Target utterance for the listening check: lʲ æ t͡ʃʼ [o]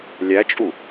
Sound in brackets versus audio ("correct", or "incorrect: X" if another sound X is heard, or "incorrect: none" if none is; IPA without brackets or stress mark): incorrect: u